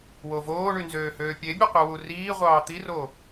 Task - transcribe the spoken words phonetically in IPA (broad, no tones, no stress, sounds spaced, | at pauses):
w o v oː ɳ y n z øː h øː pʲ e bʲ ɯ qʷ e w u r iː ʁʷ ɑː t̪ i r oː